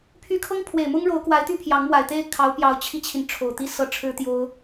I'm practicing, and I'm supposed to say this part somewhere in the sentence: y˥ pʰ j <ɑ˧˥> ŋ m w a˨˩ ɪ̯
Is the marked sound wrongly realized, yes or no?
no